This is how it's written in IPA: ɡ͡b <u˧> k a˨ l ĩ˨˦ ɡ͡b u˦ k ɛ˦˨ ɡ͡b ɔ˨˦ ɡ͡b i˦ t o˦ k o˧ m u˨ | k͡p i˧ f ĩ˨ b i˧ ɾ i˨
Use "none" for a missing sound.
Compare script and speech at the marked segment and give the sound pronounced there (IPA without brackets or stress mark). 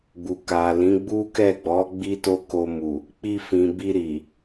u˨